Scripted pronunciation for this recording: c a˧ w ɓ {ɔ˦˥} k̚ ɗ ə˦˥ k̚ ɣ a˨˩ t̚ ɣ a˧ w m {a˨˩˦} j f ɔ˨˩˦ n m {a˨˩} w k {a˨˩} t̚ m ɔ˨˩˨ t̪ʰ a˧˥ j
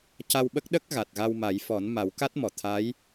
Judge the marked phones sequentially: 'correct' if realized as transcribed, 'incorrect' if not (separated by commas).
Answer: incorrect, correct, incorrect, incorrect